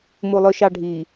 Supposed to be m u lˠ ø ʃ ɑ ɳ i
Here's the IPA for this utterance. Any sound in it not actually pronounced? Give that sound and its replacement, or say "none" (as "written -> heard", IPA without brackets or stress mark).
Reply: ɳ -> ɖʱ